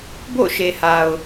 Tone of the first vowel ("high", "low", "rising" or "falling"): falling